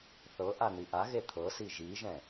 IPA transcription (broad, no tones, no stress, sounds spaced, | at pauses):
θ ɤ ʔ a n̪ i ʔ a ɣ e t̪ʰ ɤ s i ʒ i ʒ ɛ̃